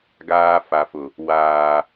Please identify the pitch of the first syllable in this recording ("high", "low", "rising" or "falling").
high